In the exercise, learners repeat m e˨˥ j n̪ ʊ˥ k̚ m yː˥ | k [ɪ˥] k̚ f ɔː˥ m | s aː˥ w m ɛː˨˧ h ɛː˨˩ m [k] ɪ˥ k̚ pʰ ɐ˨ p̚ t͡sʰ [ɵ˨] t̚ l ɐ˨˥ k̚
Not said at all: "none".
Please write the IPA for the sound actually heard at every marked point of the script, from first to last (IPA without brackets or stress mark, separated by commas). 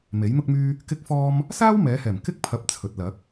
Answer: ɪ˥, k, ɵ˨